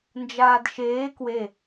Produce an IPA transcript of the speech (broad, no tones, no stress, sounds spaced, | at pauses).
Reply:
n d͡ʒ aː d ʃ eː k w e